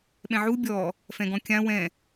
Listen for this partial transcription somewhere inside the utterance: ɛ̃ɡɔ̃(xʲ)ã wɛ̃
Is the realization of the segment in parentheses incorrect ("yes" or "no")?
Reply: yes